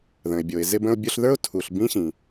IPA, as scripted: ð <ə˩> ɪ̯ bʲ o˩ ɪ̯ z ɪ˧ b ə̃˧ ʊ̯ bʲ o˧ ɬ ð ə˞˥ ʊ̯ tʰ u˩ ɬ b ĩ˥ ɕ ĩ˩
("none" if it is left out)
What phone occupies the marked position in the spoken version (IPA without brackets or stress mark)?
ə̃˩